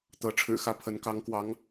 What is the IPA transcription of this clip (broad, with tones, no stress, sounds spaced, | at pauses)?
t̪ ɤ˧˥ ʈ͡ʂʰ ɻ̩˨˩ x ä˥˩ pʰ ə˧˥ n k ɑ˧˥ ŋ k w ɑ˧˥ ŋ